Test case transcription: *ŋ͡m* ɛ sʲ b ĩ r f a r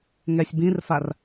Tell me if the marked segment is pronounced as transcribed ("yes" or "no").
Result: no